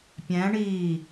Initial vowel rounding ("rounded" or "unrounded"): unrounded